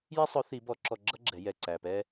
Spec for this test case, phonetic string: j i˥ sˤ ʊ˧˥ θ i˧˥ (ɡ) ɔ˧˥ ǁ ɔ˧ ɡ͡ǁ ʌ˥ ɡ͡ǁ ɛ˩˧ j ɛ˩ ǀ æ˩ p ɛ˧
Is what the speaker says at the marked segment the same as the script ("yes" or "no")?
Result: no